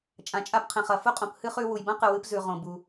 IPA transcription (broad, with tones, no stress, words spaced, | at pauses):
t͡ʃʼã˩t͡ʃʼa˧pqʰẽ˩χ ɐ˩fu˥qʼõ˩p hɨ˥χʉ˧ wu˩jbɐ̃˥qɨ˩ wɨ˧pzʉ˩ ʁõ˩bu˩